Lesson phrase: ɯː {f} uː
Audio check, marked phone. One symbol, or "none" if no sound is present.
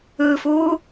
f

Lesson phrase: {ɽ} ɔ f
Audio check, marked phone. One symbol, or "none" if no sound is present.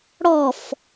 ɽ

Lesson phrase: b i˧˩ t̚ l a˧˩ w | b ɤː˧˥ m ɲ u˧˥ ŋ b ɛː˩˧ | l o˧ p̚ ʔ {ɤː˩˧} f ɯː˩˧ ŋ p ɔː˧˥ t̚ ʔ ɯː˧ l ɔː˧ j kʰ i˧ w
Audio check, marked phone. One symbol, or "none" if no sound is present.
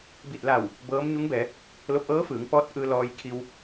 ɤː˧˥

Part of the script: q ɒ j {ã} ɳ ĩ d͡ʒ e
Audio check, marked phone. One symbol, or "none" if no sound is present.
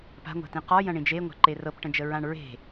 ɐ̃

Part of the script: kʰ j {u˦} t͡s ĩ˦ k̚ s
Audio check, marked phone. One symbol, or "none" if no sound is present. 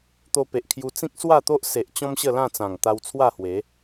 u˧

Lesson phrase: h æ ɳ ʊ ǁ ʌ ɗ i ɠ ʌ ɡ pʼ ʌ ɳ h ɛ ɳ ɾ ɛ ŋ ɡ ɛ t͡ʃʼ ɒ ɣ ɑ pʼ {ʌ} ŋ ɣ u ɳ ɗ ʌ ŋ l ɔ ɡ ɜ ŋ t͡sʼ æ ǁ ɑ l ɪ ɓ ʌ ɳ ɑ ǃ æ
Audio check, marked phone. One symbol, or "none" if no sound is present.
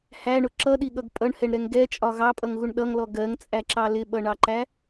ʌ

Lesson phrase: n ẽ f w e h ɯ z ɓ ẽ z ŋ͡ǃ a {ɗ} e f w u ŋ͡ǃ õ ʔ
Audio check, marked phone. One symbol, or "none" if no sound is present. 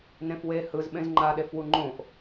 ɗ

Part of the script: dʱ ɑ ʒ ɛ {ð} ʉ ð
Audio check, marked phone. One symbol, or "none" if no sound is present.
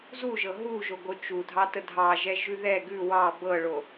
ʒ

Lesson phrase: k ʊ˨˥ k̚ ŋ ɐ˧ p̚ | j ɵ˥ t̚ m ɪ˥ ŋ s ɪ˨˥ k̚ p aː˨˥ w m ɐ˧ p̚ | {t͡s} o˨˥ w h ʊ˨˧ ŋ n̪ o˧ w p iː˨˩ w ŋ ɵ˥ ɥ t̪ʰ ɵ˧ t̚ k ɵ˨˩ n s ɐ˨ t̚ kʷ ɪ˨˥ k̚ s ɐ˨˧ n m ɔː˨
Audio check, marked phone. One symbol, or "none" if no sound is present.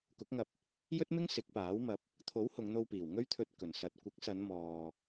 t̪ʰ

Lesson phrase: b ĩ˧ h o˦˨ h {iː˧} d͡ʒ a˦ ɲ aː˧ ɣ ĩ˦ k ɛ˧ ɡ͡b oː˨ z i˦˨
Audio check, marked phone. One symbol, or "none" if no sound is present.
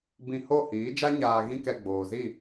iː˨˦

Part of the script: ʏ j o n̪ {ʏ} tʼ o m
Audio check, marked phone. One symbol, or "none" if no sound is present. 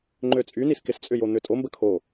ʏ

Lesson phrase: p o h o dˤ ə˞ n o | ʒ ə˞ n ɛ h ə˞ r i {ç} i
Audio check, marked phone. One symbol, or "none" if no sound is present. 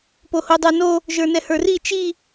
t͡ʃ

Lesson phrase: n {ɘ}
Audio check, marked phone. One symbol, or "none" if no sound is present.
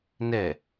ɛ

